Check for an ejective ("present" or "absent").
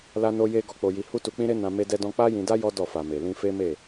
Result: absent